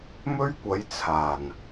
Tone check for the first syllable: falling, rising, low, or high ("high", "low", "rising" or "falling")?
high